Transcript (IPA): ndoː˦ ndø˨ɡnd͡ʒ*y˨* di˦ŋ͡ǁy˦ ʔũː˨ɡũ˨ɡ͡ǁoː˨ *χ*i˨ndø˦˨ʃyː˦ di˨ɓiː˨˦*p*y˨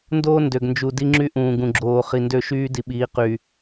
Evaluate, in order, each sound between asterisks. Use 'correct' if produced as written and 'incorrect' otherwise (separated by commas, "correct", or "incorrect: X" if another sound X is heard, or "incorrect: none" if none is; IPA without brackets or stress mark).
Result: incorrect: u˨, correct, incorrect: q